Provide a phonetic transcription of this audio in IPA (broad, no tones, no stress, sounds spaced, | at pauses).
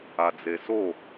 a d͡z e s o